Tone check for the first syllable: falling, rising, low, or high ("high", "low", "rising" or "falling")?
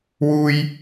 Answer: high